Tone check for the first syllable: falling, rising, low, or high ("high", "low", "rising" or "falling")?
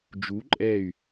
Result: rising